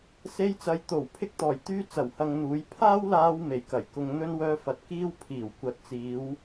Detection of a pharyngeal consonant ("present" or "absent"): absent